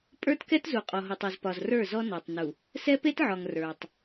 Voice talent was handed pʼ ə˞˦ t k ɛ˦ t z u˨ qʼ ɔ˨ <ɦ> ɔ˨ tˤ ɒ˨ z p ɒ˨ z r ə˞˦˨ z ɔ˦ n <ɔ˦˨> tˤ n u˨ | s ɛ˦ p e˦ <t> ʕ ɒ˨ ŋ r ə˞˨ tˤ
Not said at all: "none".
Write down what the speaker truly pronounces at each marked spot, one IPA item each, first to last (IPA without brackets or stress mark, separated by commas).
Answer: ɦ, ɔ˨, t